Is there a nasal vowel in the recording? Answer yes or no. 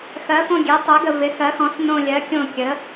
yes